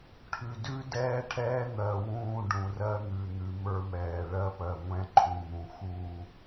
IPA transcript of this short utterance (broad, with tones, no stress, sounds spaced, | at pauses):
ʈʰ ʉ˨ d ʉ˦ d ɛː˦ ʈʰ ɛː˦ n̪ ɜ˨ w ũː˦˨ ɖ ũ˨ r ɜ˦ n̪ ʉ˨ n̪ ʉ˨˦ m ə˞˦ m ɛː˨ ɭ ɜ˦ p ɜ˨ ŋʷ ɛ̃˦ ǃʰ ũ˨ n̪ ũ˨ x u˦˨